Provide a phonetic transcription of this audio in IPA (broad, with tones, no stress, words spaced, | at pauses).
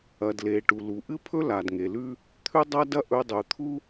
ɐ˩dle˩ ʈu˩lu˩ʔɨ˥pʰɵ˥ la˩dŋe˩lʉ˥ | t̪ʰʉ˥dˤɐ˥dɐ˥ ʔɵ˧dˤʉ˩t̪ʰu˥